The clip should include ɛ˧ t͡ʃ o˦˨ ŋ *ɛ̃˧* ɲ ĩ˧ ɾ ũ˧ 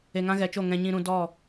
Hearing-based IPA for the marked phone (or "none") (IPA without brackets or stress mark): ɛ̃˧